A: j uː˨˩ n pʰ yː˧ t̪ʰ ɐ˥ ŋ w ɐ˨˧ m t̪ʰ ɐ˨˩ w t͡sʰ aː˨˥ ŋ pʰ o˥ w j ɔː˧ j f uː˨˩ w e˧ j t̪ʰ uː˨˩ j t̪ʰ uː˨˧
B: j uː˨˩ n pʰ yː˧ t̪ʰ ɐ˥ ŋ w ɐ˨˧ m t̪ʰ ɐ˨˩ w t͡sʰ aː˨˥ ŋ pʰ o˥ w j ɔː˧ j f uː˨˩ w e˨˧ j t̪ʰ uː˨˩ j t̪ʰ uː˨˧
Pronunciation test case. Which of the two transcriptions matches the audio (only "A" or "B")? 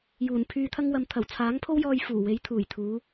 B